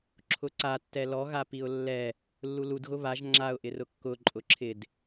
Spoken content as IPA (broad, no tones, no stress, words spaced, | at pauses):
ǁʰʊǀatːɛ lɔɣapiʊ̯ lːɛ | lːuludɣʊ βaʒ ŋ͡ǁaʊ̯ʔɪrʊ kːʊ ǃʼʊǁʰɪd